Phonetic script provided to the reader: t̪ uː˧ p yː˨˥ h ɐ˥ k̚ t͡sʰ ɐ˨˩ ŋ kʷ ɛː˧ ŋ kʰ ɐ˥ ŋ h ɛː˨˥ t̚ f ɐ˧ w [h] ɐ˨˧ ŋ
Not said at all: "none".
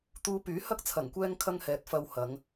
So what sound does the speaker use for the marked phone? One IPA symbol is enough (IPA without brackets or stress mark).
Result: h